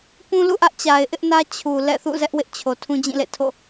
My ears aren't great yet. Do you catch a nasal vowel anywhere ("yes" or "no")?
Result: yes